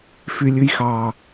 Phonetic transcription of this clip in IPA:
f y lʲ ʉ j x ɑ

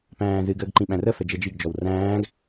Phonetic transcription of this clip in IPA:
p æ̃ː z ɨ ɡ əː ɡ ǃ ĩ ɓ æ̃ r ə f ɛ d͡ʒ ɛ d͡ʒ i ɡ d͡ʒ ɔ w r æ̃ː ɡ

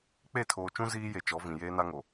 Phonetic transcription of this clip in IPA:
k͡p e˦˨ tʰ oː˨ t͡ʃ ũ˦ z iː˦ j e˨ t͡ʃ ɔ˨˦ v ĩ˨ j eː˦ n a˦ ŋ o˨

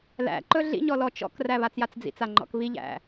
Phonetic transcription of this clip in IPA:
l æ̰ ǃ ɵ ɮ ḭ ɲ ɔ l ɔ t͡ʃ ɔ̰ k r æ β a t͡s j a t͡s d͡z ḭ t͡s a ŋ͡ǃ ɔ̰ k β i ʎ æ̰

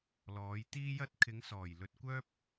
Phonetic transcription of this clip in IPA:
l ɔː˨˧ j t̪ iː˥ j ɐ˥ t̚ kʰ ɪ˨˧ ŋ s ɔː˨˩ j l ɵ˧ t̚ kʷ œː˥ p̚

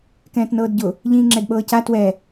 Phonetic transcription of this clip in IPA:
k ɛ̃ː t n ɤː d ɟ ʊ | ʎ ĩː ŋ͡ǁ ɛ d ɓ ɤː c a t w ɛ

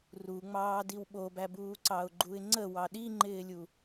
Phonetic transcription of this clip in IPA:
r u ŋ͡m ɑː d i w ɓ o b æ b uː ǀ ɑ ʊ̯ ɡ͡ǃ u ɪ̯ ŋ͡ǀ ə w ɑ ɗ i ŋ͡ǃ ɪː lʲ u

